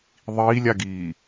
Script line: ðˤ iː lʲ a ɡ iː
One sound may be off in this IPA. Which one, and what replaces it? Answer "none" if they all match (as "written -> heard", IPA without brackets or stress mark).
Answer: none